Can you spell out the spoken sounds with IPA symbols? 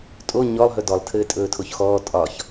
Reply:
tʼo ɲɔlˠ ɦɵdɔlˠ tʰɘːtʼɵːtʰoçxɔː tʼɒç

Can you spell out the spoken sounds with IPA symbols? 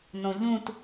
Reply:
nõʎũt

